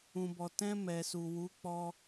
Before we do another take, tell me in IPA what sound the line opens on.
ũ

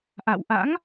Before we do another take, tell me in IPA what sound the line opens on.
ʔ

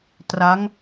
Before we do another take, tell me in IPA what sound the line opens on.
t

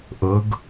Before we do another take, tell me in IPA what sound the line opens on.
ʔ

